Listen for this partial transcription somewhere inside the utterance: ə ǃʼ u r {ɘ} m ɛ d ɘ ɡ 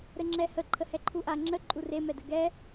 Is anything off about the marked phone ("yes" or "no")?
yes